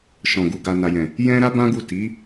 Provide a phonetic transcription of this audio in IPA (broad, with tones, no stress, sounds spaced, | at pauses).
ʃ ɔ̃˨ ɡ u˨ ɡ a˨ n a˨ j ɛ̃˨ | j ɛ̃˦ ɾ a˦ b ã˦ ɡ u˦˨ t i˨˦